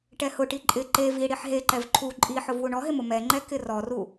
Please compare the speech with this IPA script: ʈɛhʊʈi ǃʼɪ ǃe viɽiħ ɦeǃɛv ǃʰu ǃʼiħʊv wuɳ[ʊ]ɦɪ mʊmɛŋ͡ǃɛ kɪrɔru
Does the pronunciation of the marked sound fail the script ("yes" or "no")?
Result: yes